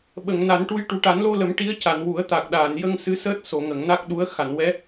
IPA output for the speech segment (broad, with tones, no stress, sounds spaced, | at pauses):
ɓ ə˨˩˨ ŋ n a˨˩˦ n ʈ u˧ j ʈ u˨˩˦ ʈ a˨˩˦ n l o˧ l ə˨˩˦ m ʈ i˧˥ ə̯ c a˨˩˨ n w u˨˩˦ ə̯ t̪ a˨˩ k̚ ɗ aː˨˩˨ n j ə˧ ŋ s ɨ˧˥ s əː˦˥ t̚ s o˨˩˨ ŋ ə˨˩˨ ŋ n a˦˥ k̚ ɗ u˧˥ ə̯ x a˨˩˨ n w ɛ˧˥